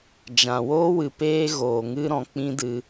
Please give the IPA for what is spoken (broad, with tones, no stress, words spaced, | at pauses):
d͡ʒã˨woː˦wɨ˨ peː˦ɣoː˨ŋɨ˦ ɾɔ̃˧k͡pĩ˦dɨ˧